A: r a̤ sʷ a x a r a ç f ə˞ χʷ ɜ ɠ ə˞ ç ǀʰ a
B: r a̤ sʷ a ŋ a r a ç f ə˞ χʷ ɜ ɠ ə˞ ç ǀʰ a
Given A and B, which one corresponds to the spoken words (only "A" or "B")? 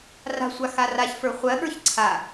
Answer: A